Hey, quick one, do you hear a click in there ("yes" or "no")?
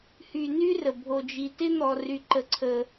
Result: yes